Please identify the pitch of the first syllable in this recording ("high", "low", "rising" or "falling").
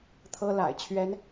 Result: high